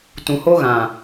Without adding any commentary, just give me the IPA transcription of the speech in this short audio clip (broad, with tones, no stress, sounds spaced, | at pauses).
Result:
t ũ˨ h o˦ ɣ ã˨